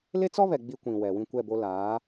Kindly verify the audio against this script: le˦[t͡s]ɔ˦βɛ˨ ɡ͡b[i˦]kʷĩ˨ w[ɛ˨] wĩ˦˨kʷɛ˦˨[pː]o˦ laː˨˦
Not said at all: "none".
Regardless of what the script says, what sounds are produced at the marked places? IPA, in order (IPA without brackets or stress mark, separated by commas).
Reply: t͡s, i˦, ɛ˨, b